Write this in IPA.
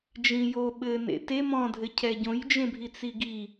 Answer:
d͡ʒ ĩ j o ɓ ɘ n ḛ t e m ɔ̃ dʱ ɘ cʰ ɛ ɟ õ j d͡ʒ ẽ bʱ i t͡s i ɡ i

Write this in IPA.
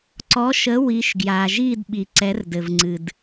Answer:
ǀ ɔ˨˦ ʃ ə˨˦ w i˨˦ ʃ ɡ j a˩ ʒ i˥˧ d ɓ i˩ ǀ ɛ˨˦ r d ɘ˩ v ŋ͡ǀ ɨ˩ d

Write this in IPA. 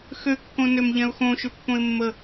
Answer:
x ø kː õ n ø m ʎ ɛ̃ ʊ̯ x õ ʃ ʏ pː õ ɪ̯ mː ə

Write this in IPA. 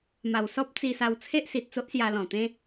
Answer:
m a˨˩ w s ɔ˦ p̚ t͡s i˧ s a˧ w t͡sʰ e˦ ʔ s i˨ t̚ t͡s o˦ ʔ s j a˧ l ɔ̃˨˩ t̪ ẽ˦

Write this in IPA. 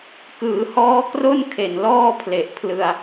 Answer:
k ɯː˩˦ h ɔː˦˥ k r o˥˩ n kʰ e˨˩ n l ɔː˥˩ pʰ l e˨˩ ʔ pʰ l ɯ˧ a̯

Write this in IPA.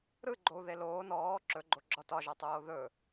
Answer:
ɾ ɯ ɡ͡ǃ o u̯ ð e l oː n ɔː ǁ ɵ ɡ͡ǃ o ɡ͡ǁ ɒ t ɒ ʒ ɒ tˤ oː ð ɵ

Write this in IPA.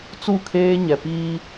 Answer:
t͡s u˦˨ kʰ eː˦ ɲ ɛ˨ p iː˦

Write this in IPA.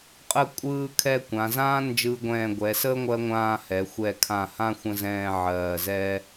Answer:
qʼ ə˥˧ kʷʼ ɯː˥˧ kʰ ɛ˥˧ kʷ ã˩˧ z ãː˥ n d͡ʒ ɯː˧ ɡʷ ɛ̃ː˧˩ ɡʷ ɛː˩˧ s əː˥ ŋʷ ɜ˥ ŋʷ ãː˥˧ h ɛ˩˧ xʷ ɛ˧˩ kʰ ã˧˩ h ã˥˧ xʷ ə̃˥ z ɛ̃ː˥˧ ʕ ɜː˧˩ z ɛ˥

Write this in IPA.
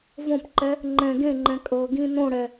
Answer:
v õ p ǃ ɛ | ŋ͡ǃ ɛ̃ ɡ ẽ ŋ͡ǃ ɛ̃ kʼ ɤ ɡ ĩ n õ ɽ ɛ

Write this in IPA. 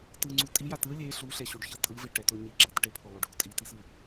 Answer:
t ɯ ŋ͡ǀ u tʼ i j a t ɯ lʲ e ɬ u ɬ ɛ ɕ u ɖ ç ʌ tʼ ɯ v e ʈ ɛ t o ɲ i ɡ͡ǁ a t ʈ e pʰ o lˠ o ɖʱ o tʼ i t i s ɯ

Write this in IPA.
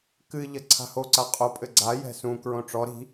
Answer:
k ɨ ʎ ɐ ǀʰ a̤ h o ǀ a qʼ o pʼ ɘ ɡ͡ǀ a j ɛ̤ s ũ k ɹ õ ʈ͡ʂ ɔ ɾ i̤

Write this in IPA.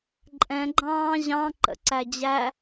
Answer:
ǃʼ ɛ̃ ɡ͡ǃ ɑ̃ː ʑ ɑ̃ ǃ ə̰ ǀ æ d͡ʑ æ

